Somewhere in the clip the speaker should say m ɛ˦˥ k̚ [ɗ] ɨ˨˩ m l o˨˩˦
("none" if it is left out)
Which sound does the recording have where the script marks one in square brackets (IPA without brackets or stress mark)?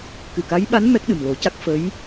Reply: ɗ